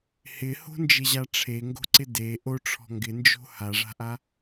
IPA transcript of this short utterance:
hɪho̤nd͡ʒɪʑa ʈ͡ʂʰeŋɡo̤ǀɪ de ʔoʈ͡ʂʰɔ̤ ŋɡɪnd͡ʒo̤ haʐa̤ʔa

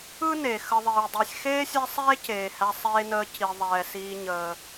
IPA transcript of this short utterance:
ɯ˥ne˩ xə˨ðˤiː˩ dˤɛ˨sʲ xeː˥sʲɛ˦ sˤeː˦ceː˩hæ˨ sˤeː˨nəː˨ ci˩ðˤɛː˩ siː˨ɲəː˩

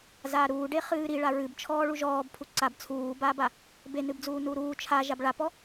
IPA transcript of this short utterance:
zaːɾuːɖe χɨːɾiɭa ɹɨbt͡ʃʰɔː ɭuʒɔːb pʰuǀab t͡sʰuːbaːba | benɨbd͡zuː nuɾuː t͡ʃʰa ʒabɭapɔ

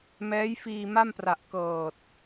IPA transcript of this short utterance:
mɛː˦˥jfiː˧ma˥˩mpra˨˩ʔ kɤː˨˩t̚

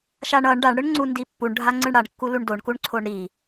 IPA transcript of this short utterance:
ʃaɳʌɳ ɖaɳɽɯɳŋ͡ǀu ndipːuɳ ɖʱaŋ͡ǀɯɳɽaɳkːu luɳdoɳ kuɳǀʰoɳɾi

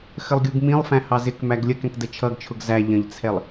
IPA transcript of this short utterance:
xəlˠɡʲuɡmĩlˠfæ̃ hɑzɪkmæɡ lʲəkɛ̃k dət͡ʃʰʌɡt͡ʃʰʊɡ zæ ʎə̃ʎt͡sʰɛlˠ

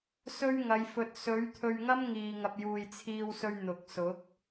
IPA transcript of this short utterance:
sɵ˥ɥŋɐ˨˧jfɵ˧t̚ sɵ˨˥ɥt̪ʰɵ˧ɥŋɐ˥m ŋiː˨ŋɐ˨p̚ juː˨jt͡sʰiː˧wsɵ˧ɥ n̪ʊ˨k̚sʊ˨˥k̚

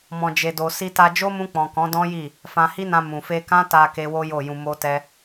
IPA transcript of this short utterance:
mɔ̃˧d͡ʒe˧do˧ si˧ta˧d͡ʒo˦ mũ˧k͡pɔ̃˨ kɔ̃˨˦dɔ̃˦ji˦˨ | fã˧hi˦nã˧ mũ˨fe˧kã˦ta˧ ke˦wo˦jo˦˨jũ˧ mo˦tɛ˦

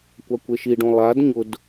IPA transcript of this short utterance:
kʷakʷeʃiɖõ lˠad ɲʊd

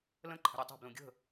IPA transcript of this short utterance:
lə̃ǃʰə̤ɾʲe tˤe̤blũ ɡʲə̤

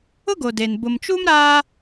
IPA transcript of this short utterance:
ʊ˦ ɡo˨de˨n bʊ˨mt͡ʃu˦m ɾaː˦

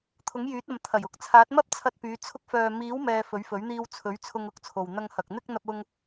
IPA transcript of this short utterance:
t̪ʰʊ˨˥ŋjyː˨˥t̚ɐ˨m t̪ʰɐ˨˩jʊ˧k̚t͡sʰaː˨˥t̚ mɐ˥p̚t͡sʰɐ˧t̚pyː˨˧ t͡sʰʊ˧k̚fœː˨miː˨˥wmɛː˨ fɵ˨˥ɥfɵ˨˥ɥ n̪iː˧wt͡sʰɵ˨˥ɥ t͡sʰʊ˧ŋʊ˨˥k̚t͡sʰo˨w n̪ɐ˧ŋhɐ˨k̚ n̪ɪ˧k̚ n̪ɐ˧p̚ʊ˧ŋ

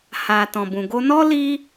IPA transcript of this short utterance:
ha˨ tɔ̃˨bũ˨ɡo˧nɔ˦ li˧

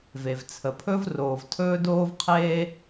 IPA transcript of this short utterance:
ve˩vt͡sʰə˩pʰɵ˥v roː˩v tʰɵː˥doː˥v qʰeː˥

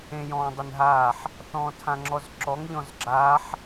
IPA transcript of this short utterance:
ẽjɔ̃ːdˤɪnɦaːħ | θɔ̃ːtʰãŋ͡ǁɔzǁɔŋ ʎɔ̃zɡ͡ǁaːħ

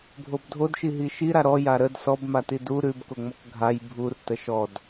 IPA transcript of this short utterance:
bʱobdʱodʃi ɦiʃiɾa ɾɔja ɾəd sɔb matidu ɾʉbkoŋ͡mɔk ɡʱaj bʱur təʃɔd

